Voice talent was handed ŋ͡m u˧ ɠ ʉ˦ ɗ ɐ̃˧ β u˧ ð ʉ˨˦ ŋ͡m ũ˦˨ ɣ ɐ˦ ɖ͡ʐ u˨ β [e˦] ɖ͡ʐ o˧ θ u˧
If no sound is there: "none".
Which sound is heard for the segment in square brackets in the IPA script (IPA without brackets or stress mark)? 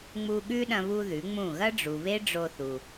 e˦